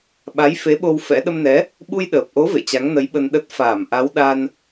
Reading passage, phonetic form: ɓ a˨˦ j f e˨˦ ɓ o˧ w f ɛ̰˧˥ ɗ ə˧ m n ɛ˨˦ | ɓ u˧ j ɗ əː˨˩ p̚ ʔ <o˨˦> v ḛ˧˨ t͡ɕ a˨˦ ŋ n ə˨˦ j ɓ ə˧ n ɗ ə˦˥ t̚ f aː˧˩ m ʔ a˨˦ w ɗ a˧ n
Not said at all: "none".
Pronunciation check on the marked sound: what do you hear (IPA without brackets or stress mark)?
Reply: o˨˦